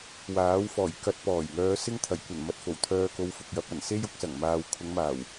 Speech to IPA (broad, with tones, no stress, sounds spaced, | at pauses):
w aː˨˥ w f ɔː˨˩ j k ɐ˧ t̚ p ɔː˨˩ j ŋ œː˨˧ s ɪ˥ ŋ t̪ʰ ɐ˨˩ j kʷ ɐ˨˩ n m ɐ˨ t̚ f o˨˩ w t̪ʰ œː˧ k o˧ w f ʊ˨ k̚ j ɐ˨˥ p̚ ɐ˨˩ n s e˥ j ʊ˧ k̚ s ɐ˨˩ ŋ m aː˨ w kʰ ʊ˨˧ ŋ m aː˨˩ w